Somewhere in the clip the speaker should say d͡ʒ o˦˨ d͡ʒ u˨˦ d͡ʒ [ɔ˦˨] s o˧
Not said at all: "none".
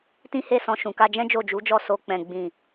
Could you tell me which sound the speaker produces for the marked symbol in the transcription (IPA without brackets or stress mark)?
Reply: ɔ˦˨